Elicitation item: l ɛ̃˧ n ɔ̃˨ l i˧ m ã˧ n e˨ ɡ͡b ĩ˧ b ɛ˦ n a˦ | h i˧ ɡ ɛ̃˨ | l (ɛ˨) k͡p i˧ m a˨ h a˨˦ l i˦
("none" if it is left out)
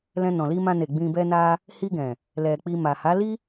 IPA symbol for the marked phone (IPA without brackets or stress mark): ɛ˨